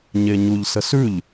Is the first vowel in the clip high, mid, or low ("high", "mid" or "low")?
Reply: mid